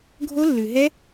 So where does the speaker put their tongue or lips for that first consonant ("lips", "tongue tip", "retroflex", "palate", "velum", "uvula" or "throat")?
velum